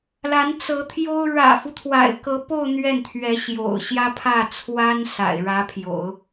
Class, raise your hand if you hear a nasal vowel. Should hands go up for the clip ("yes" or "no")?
no